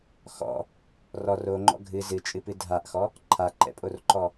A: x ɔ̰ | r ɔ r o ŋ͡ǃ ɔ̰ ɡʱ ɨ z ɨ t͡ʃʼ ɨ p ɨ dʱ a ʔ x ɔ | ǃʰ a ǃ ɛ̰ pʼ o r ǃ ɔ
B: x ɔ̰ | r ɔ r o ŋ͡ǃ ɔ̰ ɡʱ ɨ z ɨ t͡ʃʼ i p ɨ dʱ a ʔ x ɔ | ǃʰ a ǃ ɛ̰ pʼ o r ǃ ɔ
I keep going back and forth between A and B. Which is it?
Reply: A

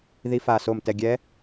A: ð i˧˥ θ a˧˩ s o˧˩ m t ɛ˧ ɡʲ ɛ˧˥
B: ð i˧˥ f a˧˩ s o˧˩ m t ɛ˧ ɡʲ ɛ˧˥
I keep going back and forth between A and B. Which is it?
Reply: B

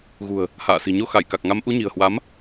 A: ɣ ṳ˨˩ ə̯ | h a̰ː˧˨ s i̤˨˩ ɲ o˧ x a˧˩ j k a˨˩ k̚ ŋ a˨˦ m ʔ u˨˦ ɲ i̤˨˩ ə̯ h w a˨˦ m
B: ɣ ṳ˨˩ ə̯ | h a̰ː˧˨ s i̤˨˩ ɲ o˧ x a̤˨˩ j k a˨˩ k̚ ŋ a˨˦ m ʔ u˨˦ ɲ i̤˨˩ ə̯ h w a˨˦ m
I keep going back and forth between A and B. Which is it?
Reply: A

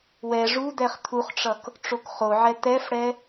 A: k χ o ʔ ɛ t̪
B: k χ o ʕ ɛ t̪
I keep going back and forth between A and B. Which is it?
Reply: B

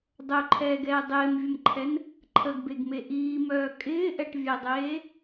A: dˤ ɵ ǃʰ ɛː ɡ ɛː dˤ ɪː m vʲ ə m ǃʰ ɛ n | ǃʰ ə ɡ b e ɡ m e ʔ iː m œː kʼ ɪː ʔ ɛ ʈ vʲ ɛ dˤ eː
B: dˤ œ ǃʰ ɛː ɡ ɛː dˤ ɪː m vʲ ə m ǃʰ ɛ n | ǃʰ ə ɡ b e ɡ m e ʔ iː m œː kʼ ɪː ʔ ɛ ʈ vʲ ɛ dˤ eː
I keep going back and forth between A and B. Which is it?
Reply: B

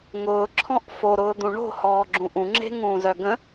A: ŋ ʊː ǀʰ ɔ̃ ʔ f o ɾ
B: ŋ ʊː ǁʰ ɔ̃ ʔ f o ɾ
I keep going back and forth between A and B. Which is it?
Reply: B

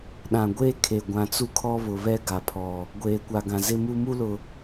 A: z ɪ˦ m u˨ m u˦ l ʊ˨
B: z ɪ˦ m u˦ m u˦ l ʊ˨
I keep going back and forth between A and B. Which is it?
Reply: B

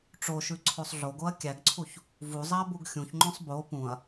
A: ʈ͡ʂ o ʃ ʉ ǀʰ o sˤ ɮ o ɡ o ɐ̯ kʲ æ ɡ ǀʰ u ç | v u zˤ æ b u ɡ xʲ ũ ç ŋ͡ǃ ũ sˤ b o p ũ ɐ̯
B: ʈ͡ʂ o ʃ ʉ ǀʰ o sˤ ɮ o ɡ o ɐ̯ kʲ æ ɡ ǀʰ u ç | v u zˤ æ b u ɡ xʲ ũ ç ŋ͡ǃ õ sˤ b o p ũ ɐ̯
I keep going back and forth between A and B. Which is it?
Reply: B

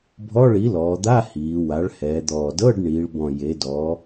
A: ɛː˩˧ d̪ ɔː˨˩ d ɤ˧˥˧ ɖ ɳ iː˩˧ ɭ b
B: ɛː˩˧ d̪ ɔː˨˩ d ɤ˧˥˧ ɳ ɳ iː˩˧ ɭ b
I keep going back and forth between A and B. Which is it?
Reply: A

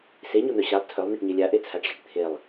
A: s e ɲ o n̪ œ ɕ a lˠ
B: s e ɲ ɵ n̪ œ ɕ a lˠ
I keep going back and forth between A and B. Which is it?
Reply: A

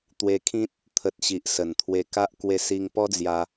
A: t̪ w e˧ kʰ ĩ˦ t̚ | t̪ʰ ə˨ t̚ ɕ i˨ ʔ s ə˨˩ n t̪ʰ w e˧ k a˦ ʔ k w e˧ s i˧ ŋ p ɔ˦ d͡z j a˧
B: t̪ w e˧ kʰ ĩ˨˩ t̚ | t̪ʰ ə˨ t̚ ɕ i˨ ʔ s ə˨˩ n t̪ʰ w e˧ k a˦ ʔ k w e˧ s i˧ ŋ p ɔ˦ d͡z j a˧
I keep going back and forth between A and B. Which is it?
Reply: A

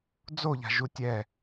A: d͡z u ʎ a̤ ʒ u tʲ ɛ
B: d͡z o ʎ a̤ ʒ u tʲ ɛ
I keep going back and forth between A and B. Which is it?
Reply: B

